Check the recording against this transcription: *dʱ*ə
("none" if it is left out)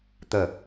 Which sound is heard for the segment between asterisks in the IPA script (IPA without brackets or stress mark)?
t̪